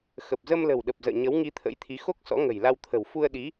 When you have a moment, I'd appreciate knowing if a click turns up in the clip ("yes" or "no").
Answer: no